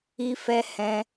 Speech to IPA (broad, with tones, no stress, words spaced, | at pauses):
i˦fɛ˦ hɛ̃˧